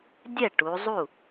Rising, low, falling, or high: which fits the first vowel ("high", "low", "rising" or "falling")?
falling